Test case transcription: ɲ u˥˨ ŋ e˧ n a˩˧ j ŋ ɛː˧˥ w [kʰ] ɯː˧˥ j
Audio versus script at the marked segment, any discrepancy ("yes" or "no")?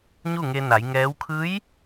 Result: no